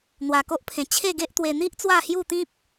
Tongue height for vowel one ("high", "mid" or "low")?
low